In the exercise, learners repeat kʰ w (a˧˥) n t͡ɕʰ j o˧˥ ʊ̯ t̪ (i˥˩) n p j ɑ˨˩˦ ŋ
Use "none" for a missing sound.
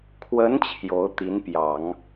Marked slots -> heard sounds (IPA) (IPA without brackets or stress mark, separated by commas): ə˧˥, i˧˥